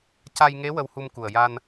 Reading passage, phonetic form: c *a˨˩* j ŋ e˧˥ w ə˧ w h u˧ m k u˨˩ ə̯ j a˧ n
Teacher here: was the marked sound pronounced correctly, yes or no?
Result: no